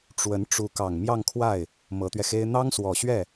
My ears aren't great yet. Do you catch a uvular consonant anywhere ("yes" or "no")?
no